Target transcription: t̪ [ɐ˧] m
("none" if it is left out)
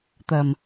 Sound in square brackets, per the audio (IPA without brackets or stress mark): ɐ˨˩